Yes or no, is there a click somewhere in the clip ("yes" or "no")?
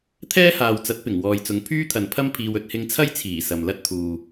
no